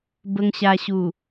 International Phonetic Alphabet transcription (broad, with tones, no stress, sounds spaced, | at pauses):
b ə˧ ŋ ɕ a˧ ɕ u˨˩